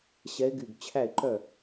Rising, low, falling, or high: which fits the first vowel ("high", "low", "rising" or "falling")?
rising